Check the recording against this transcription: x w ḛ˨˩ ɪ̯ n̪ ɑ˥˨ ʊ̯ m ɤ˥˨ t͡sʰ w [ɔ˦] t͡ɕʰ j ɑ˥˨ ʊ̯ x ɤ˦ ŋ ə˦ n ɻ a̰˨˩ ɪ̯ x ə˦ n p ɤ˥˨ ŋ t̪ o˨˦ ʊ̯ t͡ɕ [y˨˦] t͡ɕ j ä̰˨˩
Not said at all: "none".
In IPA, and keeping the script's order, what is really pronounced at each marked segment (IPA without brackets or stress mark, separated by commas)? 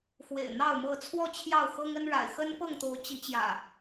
ɔ˥˨, i˨˦